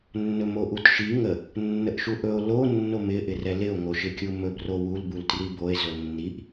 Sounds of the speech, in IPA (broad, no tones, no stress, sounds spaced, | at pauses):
nː ɵ m o ʔ u t ʃ i ŋ ə | nː ə ʔ ʃ u ʔ ɵ o̯ l o nː o m ɪ ʔ ɪ r ɛ l ɪ o̯ ŋ o ʃ ɪ kʲ u m ɵ b r o w u l b u l t r i b o e̯ z ɵ nː i ʔ